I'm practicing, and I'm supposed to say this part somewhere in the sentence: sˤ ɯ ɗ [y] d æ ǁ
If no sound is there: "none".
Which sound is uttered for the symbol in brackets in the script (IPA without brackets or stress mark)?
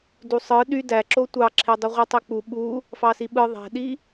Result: y